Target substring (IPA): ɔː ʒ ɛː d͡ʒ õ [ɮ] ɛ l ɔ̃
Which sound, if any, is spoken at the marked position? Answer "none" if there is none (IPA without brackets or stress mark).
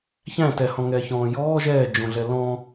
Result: ɮ